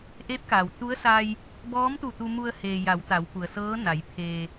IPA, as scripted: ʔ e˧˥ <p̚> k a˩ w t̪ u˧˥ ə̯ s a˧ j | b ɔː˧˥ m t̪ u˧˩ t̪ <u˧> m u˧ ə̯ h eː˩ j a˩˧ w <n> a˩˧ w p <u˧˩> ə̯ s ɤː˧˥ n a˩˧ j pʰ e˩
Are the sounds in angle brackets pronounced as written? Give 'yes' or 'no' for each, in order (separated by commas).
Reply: yes, yes, no, no